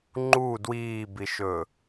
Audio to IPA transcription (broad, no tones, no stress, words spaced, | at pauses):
ŋ͡ǃu dwiːbiʃɵ